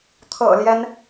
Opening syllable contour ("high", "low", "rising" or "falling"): low